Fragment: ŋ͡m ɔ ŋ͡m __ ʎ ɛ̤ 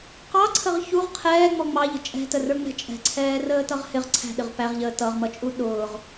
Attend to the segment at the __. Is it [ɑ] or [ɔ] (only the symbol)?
ɑ